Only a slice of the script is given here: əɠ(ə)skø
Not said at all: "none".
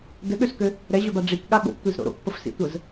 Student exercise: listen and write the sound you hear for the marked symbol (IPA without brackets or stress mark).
ø